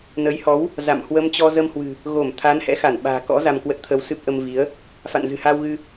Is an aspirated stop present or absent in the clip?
present